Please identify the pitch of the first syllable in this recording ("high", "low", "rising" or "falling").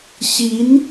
rising